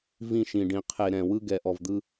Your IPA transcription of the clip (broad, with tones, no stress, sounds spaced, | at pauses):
v ĩ˦˨ ʃ ĩ˨ ɖ ĩ˨ qʰ e˨ ɾ ɛ̃˨ w ɯ˦ ɡ ɛ˨ ʔ ɔ˨ v d̪ ɯ˦